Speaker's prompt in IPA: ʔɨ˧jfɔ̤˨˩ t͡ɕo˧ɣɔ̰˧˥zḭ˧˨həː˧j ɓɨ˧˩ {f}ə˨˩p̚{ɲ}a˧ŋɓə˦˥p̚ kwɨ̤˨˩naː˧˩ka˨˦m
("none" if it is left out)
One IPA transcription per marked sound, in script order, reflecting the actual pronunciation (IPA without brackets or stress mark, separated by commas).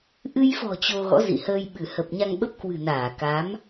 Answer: h, ɲ